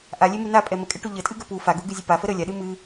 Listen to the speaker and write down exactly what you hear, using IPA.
ʔ a lʲ e m u n a pʼ ɛ m ə kʼ ɛ ʈ u ʎ ə tʼ ɨ ɡ ə p u f a ɡ u ɡ ɨ zʲ ɨ p a f ə ɾ ə lʲ a ɗ ɨ m ɨ

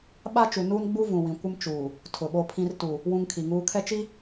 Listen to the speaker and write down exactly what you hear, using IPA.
ɓ a˦ t͡ʃ u˨ n uː˦ n ɡ͡b u˦ v ũ˨ w ĩ˨ kʷ ɪ˦ m t͡ʃ uː˨ | tʰ ʊ˨ ɓ o˦ pʰ ĩ˦ r t u˨ | w ũ˦ ŋ kʰ i˨ ŋ uː˦ kʰ ɛ˦ t͡ʃ i˦

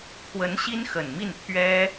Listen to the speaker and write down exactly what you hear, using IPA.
kʰ w ə˧˥ n ɕ i˥ n x ə˨˩ n m i˥˩ n t̪ʰ ɥ ɛ˥

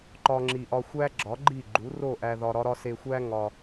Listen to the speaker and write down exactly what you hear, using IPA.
ǃ ɒ˧ ŋ͡ǁ i˨ ʔ ɒ˧ xʷ æ˦ ɡ͡ǁ ɒ˨˦ ɡ͡ǃ i˦˨ ɡ͡ǃ u˨˦ r o˦˨ ʔ æ˧ ð ɒ˧ ɾ ɒ˦ ɾ ɒ˦ s e˧ xʷ æ˦ ŋ ɒ˧

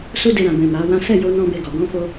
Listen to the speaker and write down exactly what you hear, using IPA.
s u˦ d e˧ ɾ ã˨ b ɛ̃˨ m a˨˦ w ã˦ s ɛ˦˨ j o˧ n ɔ̃˧ b e˧ ɡ ɔ˨ ɡ ɔ̃˧ f o˧

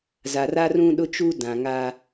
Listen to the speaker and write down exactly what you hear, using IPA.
z a˨ r a˦ r ũ˦ ɗ ʊ˦ t͡ʃ uː˦ d ã˨ ŋ a˦

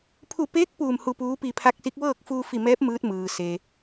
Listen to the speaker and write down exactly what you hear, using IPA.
pʰ u˧˩ p eː˧˥ k̚ p uː˧˩ m h u˧˩ p uː˧˥ p i˧˩ pʰ a˧˥ k̚ s i˧˥ k̚ ʋ ɤː˥˨ k̚ f uː˧ f i˧˩ m ɛː˧˥ p̚ m ɯː˧˥ t̚ m ɯː˩ s eː˩

